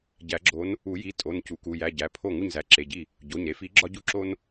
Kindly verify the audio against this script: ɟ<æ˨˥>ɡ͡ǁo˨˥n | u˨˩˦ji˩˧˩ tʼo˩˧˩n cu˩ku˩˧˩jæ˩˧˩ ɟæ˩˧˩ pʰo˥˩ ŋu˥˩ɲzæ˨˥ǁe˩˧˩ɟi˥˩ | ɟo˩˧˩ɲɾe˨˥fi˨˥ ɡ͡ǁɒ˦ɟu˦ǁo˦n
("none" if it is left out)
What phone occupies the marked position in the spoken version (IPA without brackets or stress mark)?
æ˨˩˦